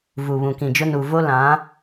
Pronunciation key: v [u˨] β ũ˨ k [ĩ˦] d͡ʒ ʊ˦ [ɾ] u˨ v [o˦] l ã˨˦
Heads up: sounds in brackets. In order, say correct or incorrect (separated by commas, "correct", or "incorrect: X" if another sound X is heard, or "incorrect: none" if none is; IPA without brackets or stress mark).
correct, incorrect: ĩ˨, incorrect: n, correct